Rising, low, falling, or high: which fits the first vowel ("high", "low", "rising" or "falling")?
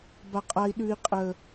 high